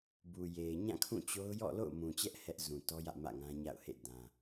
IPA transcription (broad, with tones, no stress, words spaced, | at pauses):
bu˨je˨ɪ̯ ɲã˦˨kʰũ˦˨t͡ɕo˦ʊ̯ jɔ̰˦˨lo̰˦˨ʊ̯mũ˨t͡ɕɛ˦ʔ hɛ˦ʔ zũ˨tɔ˦jä̰˦˨ mä̰˦˨ŋã˦ɲa̰˦˨ʊ̯hḛ˦˨ dã˦